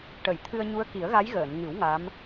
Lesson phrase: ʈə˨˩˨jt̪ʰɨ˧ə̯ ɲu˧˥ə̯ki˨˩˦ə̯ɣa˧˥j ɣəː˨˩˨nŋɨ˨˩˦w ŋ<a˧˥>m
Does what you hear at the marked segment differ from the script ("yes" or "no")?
no